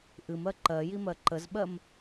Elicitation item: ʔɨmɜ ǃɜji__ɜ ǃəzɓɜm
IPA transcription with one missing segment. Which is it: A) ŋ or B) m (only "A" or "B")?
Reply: B